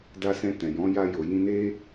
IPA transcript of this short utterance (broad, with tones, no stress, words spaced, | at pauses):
da˧sɛ̃˧tɛ̃˨jɔ̃˨˦ ja˧jo˨ jĩ˧ne˦